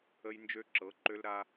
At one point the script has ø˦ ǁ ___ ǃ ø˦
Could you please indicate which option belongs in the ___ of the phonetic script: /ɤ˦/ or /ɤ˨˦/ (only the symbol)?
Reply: ɤ˨˦